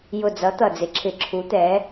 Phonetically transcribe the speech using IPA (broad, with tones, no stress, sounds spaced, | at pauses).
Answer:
j ʊ˧˩ d͡z ʌ˨˥ t̪ ʌ˧˩ d͡z ɪ˨˥ ǁʰ ɪ˧˩ ǁʰ u˨˥ t̪ ɛ˨˥